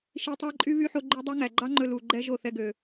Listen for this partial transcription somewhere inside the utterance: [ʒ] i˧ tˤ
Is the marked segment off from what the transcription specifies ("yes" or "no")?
yes